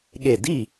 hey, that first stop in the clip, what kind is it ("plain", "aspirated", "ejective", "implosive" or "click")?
implosive